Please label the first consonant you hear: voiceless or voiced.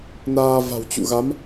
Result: voiced